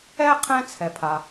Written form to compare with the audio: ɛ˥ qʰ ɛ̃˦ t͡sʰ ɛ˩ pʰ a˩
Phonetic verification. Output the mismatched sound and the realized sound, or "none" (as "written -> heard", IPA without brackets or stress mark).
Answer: none